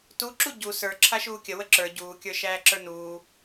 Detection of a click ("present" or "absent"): present